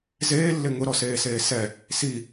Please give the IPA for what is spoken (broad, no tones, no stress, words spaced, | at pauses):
zeːlːɪ ŋʊɾɔseːseː sɛ | si